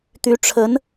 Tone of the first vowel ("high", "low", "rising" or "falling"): rising